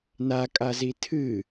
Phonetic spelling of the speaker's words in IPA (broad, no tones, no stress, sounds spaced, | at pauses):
n a kʼ a z i tʰ ɨ